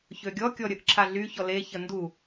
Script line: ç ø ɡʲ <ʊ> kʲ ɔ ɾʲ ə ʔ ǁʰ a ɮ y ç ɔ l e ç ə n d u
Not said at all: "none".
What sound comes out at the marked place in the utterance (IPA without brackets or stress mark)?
ɔ